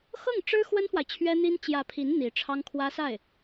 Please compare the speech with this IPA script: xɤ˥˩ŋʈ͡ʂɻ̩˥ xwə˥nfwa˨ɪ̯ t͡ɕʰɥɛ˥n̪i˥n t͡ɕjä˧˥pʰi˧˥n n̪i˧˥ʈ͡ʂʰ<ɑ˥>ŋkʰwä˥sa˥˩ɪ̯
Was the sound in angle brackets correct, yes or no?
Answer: yes